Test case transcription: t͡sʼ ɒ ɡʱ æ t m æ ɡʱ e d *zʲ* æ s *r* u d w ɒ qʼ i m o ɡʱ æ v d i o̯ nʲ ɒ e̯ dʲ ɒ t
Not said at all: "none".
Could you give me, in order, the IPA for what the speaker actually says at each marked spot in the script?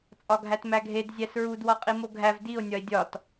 zʲ, ɹ

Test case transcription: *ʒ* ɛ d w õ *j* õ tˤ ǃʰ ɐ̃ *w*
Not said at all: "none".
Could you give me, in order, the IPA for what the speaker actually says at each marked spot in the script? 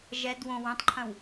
ʒ, w, w

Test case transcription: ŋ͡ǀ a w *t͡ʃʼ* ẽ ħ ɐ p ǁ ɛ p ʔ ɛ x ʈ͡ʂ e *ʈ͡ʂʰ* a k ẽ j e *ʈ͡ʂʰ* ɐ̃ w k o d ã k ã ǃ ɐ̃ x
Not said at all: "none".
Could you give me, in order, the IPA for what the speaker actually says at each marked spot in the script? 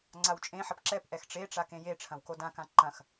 t͡ʃʼ, ʈ͡ʂ, ʈ͡ʂʰ

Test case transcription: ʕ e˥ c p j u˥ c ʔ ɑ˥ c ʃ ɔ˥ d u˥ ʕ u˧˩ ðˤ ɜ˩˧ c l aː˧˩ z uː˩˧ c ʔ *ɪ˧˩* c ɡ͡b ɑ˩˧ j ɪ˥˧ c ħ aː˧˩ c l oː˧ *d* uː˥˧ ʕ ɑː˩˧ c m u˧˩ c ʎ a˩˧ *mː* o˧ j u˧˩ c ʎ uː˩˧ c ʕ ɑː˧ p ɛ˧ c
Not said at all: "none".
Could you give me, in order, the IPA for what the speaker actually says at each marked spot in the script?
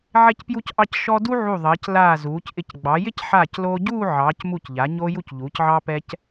ɪ˧˩, ɟ, ɲ

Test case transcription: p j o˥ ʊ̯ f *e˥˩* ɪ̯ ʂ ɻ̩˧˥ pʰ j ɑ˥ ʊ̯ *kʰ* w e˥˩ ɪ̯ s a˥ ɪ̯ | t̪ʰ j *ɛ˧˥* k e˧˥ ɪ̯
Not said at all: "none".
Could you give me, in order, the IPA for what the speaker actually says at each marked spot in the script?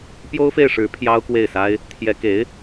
e˥˩, k, ɛ˧˥

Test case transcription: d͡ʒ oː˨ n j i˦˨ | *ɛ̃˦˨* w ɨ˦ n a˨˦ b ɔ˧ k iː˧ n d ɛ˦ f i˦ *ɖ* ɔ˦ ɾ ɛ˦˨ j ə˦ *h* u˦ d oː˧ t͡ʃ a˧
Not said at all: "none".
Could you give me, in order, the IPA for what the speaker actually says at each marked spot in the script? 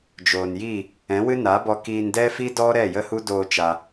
ɛ̃˨˦, d, h

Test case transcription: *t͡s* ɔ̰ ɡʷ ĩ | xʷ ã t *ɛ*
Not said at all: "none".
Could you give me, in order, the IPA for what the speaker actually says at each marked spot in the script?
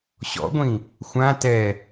ɕ, ɛ

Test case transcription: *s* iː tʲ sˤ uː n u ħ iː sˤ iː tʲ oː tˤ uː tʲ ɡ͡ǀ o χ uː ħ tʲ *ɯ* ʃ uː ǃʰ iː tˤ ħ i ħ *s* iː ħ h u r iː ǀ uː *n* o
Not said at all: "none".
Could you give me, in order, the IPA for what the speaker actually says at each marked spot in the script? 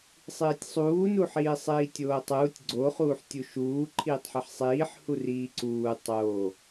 sˤ, u, sˤ, tˤ

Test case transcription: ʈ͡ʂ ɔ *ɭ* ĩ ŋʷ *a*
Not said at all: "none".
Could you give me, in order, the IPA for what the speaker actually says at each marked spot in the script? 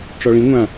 ɭ, ã

